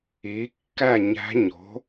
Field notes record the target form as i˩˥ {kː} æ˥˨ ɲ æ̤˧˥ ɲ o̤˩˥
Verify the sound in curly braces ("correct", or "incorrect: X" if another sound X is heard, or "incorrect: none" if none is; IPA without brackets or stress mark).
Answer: correct